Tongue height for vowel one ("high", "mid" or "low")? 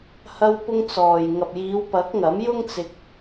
low